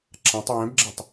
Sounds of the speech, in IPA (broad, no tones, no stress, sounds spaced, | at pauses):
ǁ ã tˤ w ɛ̃ b ɡ͡ǁ ɛ tˤ